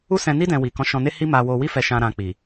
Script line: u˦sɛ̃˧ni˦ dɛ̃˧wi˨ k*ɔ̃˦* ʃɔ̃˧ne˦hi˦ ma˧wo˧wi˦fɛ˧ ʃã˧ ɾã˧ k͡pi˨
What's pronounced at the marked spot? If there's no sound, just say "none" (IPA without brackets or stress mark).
ɔ̃˨˦